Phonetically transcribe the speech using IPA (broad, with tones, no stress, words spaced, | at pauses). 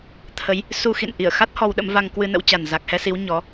t̪ʰə˨˦j | su˧xḭ˧˨nʔi˧˩ə̯xa˦˥t̚ hɔ˧wɗə̰˧˥mva˧ŋ kwɨ˧nə̰˧˥wt͡ɕa˨˩n za˨˩k̚hɛ˧si˨˦w ɲɔ˨˦